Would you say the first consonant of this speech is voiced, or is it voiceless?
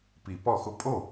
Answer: voiceless